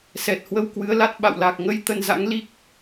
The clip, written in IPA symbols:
s ɛ˨˩ t̚ h w ə˧ w k w ɨ˨˦ ə̯ l a˦˥ t̚ ɓ a̰˧˨ w l a˨˩ k̚ ŋ ə˧ j t̪ ə˧ n z a̰˧˥ ŋ l i˦˥ k̚

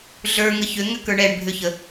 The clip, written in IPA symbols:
ɮ ə˞ ŋ ə ç ʏ ŋ ʏ k ə˞ ɳ ɛ ɳ bʱ ʏ ç ə

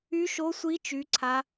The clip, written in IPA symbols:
y˦˥ ʃ o˦˥ sʷ i˦˥ t͡ʃ y˦˥ ǀʰ a˦˥

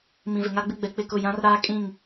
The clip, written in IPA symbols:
m ĩ˨ v ɪ˨ ŋ a˦ ɡ͡b ɪ˦ ɡ͡b ɛ˨ k͡p ɪ˦˨ k ʊ˦˨ j ã˦ r ɾ aː˦ kʼ ĩ˦˨ ŋ

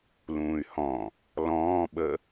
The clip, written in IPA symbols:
l ũː y̯ h ɔ̃ | l ɔ̃ː ɓ ə

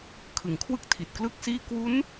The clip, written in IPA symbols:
kʰ ɯ˩˦ ŋ kʰ w ɯ˥˩ k̚ tʰ i˨˩ t̚ k l ɯ˥˩ k̚ s iː˥˩ k w u˦˥ n

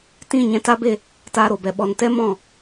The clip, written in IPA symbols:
t ĩ˦˨ ɲ ɛ̃˨˦ t a˦ b e˦˨ | t aː˧ ɾ o˨ b ɛ˨ ɓ ɔ˨ n t ɛ˦ m ɔ̃˦˨

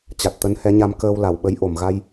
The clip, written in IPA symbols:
t͡ɕ a˨˩ t̚ t̪ ə˨˦ n h ɛ˨˦ ɲ a˧ m k əː˧ w l a˧˩ w ɓ ə˨˦ j ʔ o˧˩ m ɣ a˧ j

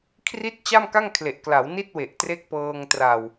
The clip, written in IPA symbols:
kʰ r i˦˥ t̚ t͡ɕ a˥˩ m k a˥˩ ŋ kʰ l e˨˩ ʔ k l a˩˦ w n i˥˩ t̚ w e˨˩ ʔ t r e˦˥ k̚ p ɤː˧ ŋ t r a˨˩ w

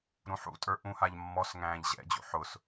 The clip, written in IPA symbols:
ɾ ũ ħ ṵ tʼ ə˞ ʔ ũ h a ʎ mː ɔ s ŋ æ̃ː ʎ ʑ ɛ̰ d͡ʑ ṵ ħ ʊ s

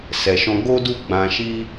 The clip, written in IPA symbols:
s ɛ˨ ʃ ɔ̃˧ ɡ o˦ d u˦ ɡ͡b ã˧ ʃ i˦

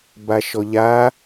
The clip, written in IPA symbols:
b a ʃ ɔ ʎ a

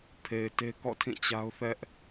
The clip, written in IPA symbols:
pʰ e˨ ɪ̯ t e˦ k ɔ̰˦˨ tʰ ĩ˦˨ t͡ɕ a˦ ʊ̯ θ ɛ˦ ʔ

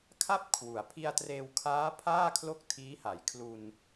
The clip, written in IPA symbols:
kʰ a˥˩ p̚ kʰ w u˩˦ a̯ pʰ i˧ a̯ t r eː˧ w kʰ aː˦˥ pʰ aː˥˩ kʰ l o˥˩ k̚ tʰ iː˦˥ h a˩˦ j kʰ l u˧ n

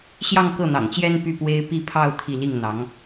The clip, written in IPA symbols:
ɕ j ɑ˥˧ ŋ k ɤ˥˩ n̪ ɑ̰˨˩ ŋ t͡ɕ j ɛ˥ n p y˥˩ p w e˥ ɪ̯ p i˥˧ pʰ ɑ˥˧ ʊ̯ t̪ʰ i˥˧ l i˥˩ ŋ n̪ ɑ˧˥ ŋ

